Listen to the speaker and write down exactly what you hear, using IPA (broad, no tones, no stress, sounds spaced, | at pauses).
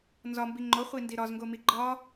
n z ɒ m b i ŋ͡ǃ o χʷ i n d i ɾ ɒ z ŋ ɡ o m i ɡ͡ǃ ɒ